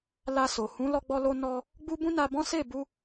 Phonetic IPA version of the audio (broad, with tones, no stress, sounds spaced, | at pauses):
l a˧ s o˨ h ũ˨˦ l ɔ˧ ɡ͡b ɔ˧ l o˧ n ɔ˧ | ɡ͡b u˦ b ũ˦ n a˧ b ɔ̃˦ s e˦˨ b u˧